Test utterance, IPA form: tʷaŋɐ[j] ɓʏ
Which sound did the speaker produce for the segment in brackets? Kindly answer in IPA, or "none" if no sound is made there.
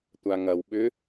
w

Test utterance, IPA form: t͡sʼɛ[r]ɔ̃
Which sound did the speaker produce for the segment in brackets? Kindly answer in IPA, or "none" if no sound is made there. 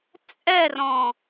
r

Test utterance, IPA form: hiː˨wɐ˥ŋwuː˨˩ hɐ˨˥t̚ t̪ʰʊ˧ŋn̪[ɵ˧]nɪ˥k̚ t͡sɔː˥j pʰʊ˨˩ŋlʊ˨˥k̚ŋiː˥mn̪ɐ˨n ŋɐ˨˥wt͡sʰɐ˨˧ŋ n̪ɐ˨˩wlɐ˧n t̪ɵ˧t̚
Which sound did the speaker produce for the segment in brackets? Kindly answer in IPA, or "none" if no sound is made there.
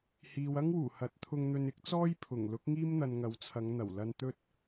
ɵ˧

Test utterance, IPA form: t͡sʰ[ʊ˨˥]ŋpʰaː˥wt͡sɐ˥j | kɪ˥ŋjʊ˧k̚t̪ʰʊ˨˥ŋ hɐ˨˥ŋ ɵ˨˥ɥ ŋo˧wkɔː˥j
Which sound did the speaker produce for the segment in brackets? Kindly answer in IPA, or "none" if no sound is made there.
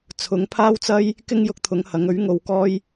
ʊ˨˥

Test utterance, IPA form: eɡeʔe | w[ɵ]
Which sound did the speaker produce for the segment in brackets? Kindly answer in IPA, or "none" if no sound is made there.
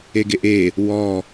ɔ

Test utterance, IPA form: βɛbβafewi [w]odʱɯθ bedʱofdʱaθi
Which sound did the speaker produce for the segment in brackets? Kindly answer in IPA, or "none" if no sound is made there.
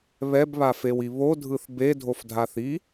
β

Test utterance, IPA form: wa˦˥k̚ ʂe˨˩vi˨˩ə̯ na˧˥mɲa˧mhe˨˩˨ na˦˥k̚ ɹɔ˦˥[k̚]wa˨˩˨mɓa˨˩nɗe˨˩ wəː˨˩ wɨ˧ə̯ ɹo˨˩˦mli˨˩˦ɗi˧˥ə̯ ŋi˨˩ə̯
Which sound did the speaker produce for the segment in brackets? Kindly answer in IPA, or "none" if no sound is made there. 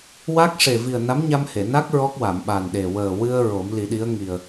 k̚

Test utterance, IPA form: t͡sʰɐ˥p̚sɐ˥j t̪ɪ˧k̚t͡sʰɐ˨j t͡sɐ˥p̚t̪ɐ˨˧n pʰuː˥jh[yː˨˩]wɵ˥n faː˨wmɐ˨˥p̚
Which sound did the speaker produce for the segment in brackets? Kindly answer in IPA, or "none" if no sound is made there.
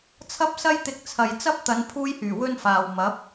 yː˨˩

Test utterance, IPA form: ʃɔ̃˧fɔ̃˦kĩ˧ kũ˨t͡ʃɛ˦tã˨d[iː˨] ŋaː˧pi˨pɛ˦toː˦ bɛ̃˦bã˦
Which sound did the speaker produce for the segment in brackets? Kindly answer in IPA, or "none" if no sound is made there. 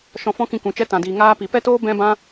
iː˨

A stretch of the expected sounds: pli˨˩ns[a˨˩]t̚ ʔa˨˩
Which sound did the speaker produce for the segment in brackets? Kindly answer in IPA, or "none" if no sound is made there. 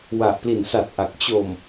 a˨˩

